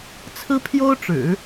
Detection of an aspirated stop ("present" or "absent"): present